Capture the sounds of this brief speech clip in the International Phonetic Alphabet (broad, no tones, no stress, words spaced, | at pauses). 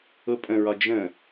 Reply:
ʊ pʼə̃ɹɒ d͡ʒə̃